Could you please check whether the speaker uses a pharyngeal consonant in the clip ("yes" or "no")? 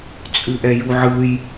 yes